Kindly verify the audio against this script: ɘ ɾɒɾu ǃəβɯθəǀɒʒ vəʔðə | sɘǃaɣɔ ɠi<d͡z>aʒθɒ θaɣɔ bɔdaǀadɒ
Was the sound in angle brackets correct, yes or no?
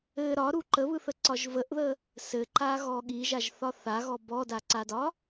no